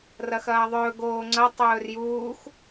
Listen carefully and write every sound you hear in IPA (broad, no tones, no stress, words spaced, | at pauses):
rɐxɐːðˤɵː ɡoːŋ͡ǀɐ tˤɵːrjuːx